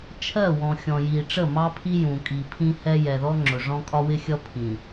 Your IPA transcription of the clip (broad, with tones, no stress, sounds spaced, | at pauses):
t͡ʃʰ ɜ˦˨ w ɔ̃˨ xʲ ɔ̃˨ j i˨ ʈ͡ʂ ə˦˨ m ɑ˦ pʰ i˦ j ũ˨ kʼ i˨ pʰ ĩ˦ h ɛ˦ j ɛ˨ ð ɔ˦ ŋ͡ǁ ʊ˨ ʐ ɔ̃˦ kʼ ɒ˦ w ɪ˦ xʲ ʌ˦ pʰ ĩ˨